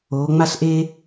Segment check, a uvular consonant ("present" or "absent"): absent